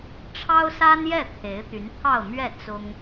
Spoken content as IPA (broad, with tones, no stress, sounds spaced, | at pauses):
ʈ͡ʂʰ ɑ˥ ʊ̯ s a˥ n j ɛ˥˩ t̪ʰ e˧˥ ɪ̯ t̪ y˧˥ n t̪ʰ ɑ˥˧ ʊ̯ m ɥ ɛ˥˩ t͡s ʊ˥ ŋ